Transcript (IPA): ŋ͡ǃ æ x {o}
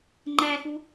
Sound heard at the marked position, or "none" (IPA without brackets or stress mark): u